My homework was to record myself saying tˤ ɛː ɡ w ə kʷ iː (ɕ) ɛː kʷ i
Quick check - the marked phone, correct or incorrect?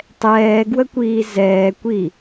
incorrect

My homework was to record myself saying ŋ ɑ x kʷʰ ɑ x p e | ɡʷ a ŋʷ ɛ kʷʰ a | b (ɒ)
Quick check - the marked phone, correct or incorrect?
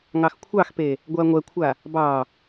incorrect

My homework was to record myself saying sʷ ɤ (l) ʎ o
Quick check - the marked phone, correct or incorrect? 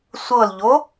correct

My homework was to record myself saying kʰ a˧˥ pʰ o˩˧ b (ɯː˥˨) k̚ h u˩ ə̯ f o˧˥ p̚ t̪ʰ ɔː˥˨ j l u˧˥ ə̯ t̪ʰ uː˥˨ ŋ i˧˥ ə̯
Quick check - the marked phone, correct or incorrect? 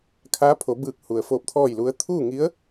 incorrect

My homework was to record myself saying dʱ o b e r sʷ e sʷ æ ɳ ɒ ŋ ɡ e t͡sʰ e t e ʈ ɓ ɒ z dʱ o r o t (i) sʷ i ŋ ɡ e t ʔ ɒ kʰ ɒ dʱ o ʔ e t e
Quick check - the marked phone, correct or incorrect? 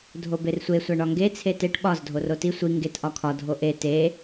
correct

